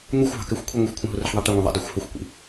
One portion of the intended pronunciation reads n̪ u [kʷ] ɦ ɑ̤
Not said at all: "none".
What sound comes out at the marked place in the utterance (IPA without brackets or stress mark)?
xʷ